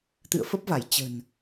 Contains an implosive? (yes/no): no